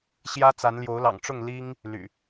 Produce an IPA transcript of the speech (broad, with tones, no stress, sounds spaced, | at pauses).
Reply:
ɕ j ä˦ t͡s a˨˦ n l j o˨˦ ʊ̯ l ɑ̰˨˩ ŋ ʈ͡ʂ ʊ˥˨ ŋ l i˦ ŋ | l y̰˨˩